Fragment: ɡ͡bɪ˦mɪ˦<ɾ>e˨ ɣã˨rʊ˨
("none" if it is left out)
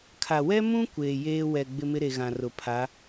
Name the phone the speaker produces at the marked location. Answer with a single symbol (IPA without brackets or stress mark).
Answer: ɾ